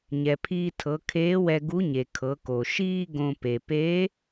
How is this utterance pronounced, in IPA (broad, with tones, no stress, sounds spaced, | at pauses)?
ɲ ɛ˩ pʰ iː˧ tʰ ɤ˩˧ kʰ eː˧˥ w ɛ˧ ɡ u˧˥ ɲ e˩ kʰ ɤ˩˧ k o˩ ʃ iː˥ ɡ õ˧ p e˩ p e˧˥